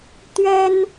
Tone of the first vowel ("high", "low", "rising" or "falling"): high